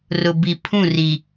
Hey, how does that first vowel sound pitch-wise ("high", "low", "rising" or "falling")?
low